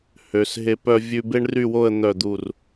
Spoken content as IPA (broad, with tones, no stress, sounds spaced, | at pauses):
h ø˩˧ s ɦ e˧ p œ˧ vʲ ʉ˧ b e˥ ɳ r y˥˧ w o˥˧ ə̯ n̪ œ˧˩ d̪ u˧˩ r